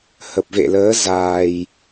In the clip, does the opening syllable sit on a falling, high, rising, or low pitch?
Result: low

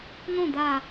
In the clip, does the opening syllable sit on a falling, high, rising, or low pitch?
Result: falling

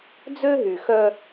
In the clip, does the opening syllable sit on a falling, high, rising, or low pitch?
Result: high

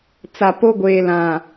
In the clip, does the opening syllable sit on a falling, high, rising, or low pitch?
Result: low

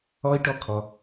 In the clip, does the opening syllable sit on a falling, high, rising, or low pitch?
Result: high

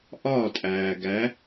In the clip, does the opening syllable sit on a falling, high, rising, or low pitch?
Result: falling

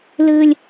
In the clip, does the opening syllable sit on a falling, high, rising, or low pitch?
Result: high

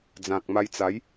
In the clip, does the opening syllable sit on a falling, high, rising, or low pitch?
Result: low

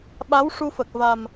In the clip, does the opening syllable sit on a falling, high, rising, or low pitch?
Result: rising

